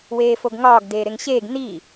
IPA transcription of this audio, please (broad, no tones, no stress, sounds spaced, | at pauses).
w eː f o ɡ ŋ ɒː ɡ d eː ɾ e ŋ ɕ eː ɡ n i